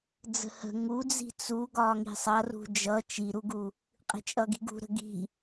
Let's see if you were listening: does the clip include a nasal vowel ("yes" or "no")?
no